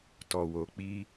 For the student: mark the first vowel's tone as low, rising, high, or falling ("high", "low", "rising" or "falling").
low